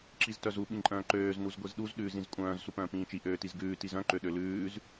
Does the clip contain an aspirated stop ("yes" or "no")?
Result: no